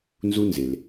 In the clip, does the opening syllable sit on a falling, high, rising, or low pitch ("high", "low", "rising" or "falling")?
high